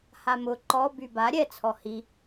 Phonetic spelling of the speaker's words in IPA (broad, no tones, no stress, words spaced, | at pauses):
hamʊ ǃɔ byba ɾʲɛ t͡sʰɔhi